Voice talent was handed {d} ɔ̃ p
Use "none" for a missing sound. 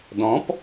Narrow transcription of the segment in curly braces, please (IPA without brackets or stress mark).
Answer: d